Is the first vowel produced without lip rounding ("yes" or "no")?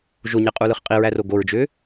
no